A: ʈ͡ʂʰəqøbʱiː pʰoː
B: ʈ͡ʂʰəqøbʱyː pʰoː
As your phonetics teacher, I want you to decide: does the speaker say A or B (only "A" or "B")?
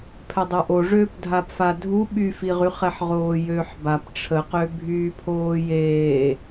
B